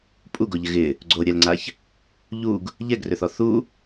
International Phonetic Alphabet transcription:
pʼ u ɡ o ʎ ɪ ɣ ɪ | ɡ͡ǀ o ɾʲ ɛ l ŋ͡ǀ a ç | ʎ u ɡ | ʎ ɛ ɡ r ø θ ɔ θ u

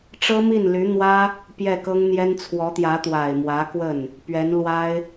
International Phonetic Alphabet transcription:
ʈ͡ʂ ɤ˥ m i˥˩ n l y˧˥ n̪ w ä˥ | p j ɛ˥˩ k ɤ˥ ŋ n̪ j ɛ˥ n t͡sʰ w ɔ˧˥ t̪ j ä˧˥ t̪ w a˨˩ ɪ̯ m w ä˧˥ k w ə˥˩ n | p ɥ ɛ˧˥ n l w a˥ ɪ̯

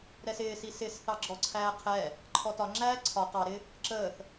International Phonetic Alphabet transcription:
ɾ ɛ s ɪː s i s ɪ s θ ɑ ɡ͡ǁ ɔ ǀʰ æː qʰ ɛ | ǃʰ ɔ t ɒ ŋ͡ǁ æː ǀʰ ɒ q ɑ ɾ ɪ | ǁ əː θ

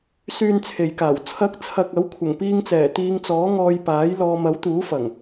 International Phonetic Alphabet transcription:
s yː˧ n t͡sʰ e˨ j k aː˨˩ w t͡sʰ ɐ˨˥ k̚ t͡sʰ ɐ˨ k̚ ɐ˨˥ w kʷʰ ɐ˨˩ ŋ p iː˧ ŋ t͡s ɛː˨˩ t̪ iː˨˧ ŋ t͡s ɔː˨˥ ŋ ɔː˧ j p aː˨˥ j l ɔː˨ m ɐ˨˥ w t̪ uː˨˥ f ɐ˨˩ ŋ

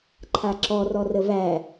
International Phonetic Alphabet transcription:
ǃʰ a ǁ ɔ r ɔ r ə v æ

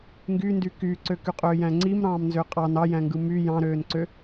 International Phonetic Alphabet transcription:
ŋ ɡ y n d y k y ǀ ø k y qʼ øː j æ̃ ŋ͡ǀ i m ɾ ɑ̃ː m n z ø qʼ ɑ n ɑ j æ̃ ŋ ɡ ɯ m y j ɑ̃ ɾ øː n ǀ ø

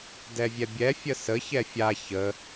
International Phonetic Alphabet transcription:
d ɛ vʲ ɛ bʲ ɛ fʲ ə s ə ç ɛ fʲ a ç ə

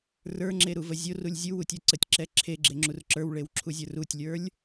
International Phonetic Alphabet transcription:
r ə˞ ŋ͡ǁ e ɾ u v ə zʲ o r u lʲ zʲ u w u tʲ ə˞ ǀ ə tʲ ǁ ɛ ǁʰ e ɡ͡ǁ e ŋ͡ǁ u r ǁ ə˞ w ɭ e w ǁʰ u zʲ ə˞ r u tʲ lʲ ə˞ lʲ

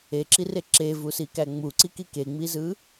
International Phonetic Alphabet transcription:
e ǁ i r e ǁ e v u s i k æ ŋ͡m u ǀ i k i k e ŋ͡m i z ɯ

